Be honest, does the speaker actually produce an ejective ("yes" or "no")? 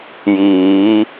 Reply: no